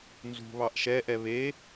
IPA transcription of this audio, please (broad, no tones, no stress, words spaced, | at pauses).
nzṳ βɑʔʃɛʔɛ βe